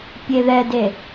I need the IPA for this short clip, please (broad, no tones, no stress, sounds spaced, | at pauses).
pʲ e ð ɛ d e